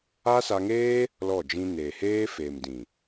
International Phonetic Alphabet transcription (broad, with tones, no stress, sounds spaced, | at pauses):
a˦ s a˧ ŋ eː˦ | l ɔ˦˨ d͡ʒ ĩ˧ n eː˨ h eː˦ f eː˨ m d ĩ˨